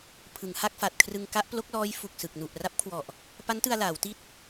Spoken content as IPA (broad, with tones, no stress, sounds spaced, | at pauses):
pʰ ɯ˩˦ ŋ h a˥˩ k̚ f a˨˩ t̚ kʰ r ɯ˧ ŋ k a˦˥ ʔ p l o˦˥ k̚ l ɔː˦˥ j f u˨˩ k̚ s ɯ˨˩ k̚ n u˨˩ ʔ r a˦˥ p̚ kʰ w ɔ˨˩ ʔ | p a˦˥ n t ɯ˧ a̯ l aː˩˦ w t i˦˥ t̚